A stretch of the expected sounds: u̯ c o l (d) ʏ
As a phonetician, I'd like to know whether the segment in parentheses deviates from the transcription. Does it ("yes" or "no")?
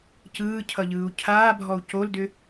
no